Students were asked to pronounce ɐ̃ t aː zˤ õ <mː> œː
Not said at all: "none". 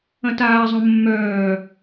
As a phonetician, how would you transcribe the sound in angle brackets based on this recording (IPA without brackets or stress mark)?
mː